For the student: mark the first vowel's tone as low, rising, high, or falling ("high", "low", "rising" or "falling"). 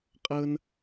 high